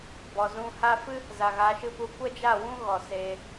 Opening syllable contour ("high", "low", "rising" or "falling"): low